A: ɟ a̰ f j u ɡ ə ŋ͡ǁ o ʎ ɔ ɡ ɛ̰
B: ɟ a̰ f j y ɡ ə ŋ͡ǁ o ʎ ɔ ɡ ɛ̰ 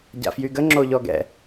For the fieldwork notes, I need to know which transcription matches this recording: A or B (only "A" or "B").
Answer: B